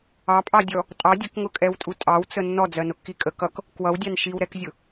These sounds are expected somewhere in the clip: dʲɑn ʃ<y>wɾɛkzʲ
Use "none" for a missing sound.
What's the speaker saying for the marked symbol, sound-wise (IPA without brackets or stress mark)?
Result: i